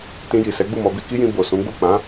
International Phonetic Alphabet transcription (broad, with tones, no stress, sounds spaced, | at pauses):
t ĩ˧ j i˨ s ɛ˨˦ ɡ͡b u˦˨ m ɔ˧ b i˧ k i˦ j ĩ˧ b o˨ s ũ˨˦ ɡ͡b u˦˨ k͡p ã˨˦